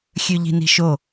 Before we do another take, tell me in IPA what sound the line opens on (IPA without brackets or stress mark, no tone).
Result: xʲ